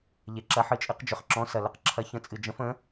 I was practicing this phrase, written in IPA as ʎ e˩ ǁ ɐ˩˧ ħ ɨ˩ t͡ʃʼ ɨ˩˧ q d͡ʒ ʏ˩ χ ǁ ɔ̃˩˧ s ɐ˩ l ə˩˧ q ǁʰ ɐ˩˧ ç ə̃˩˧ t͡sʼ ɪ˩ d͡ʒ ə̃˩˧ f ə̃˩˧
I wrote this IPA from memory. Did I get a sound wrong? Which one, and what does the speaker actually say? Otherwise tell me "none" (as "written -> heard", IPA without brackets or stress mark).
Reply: ɪ˩ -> ɨ˩